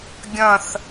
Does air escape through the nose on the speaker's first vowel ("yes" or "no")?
yes